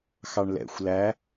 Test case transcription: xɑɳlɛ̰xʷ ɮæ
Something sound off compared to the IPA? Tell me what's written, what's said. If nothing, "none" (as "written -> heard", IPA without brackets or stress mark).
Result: ɮ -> l